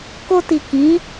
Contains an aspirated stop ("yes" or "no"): no